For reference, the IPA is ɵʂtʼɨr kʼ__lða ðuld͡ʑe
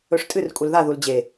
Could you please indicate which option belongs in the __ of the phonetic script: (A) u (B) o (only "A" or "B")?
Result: A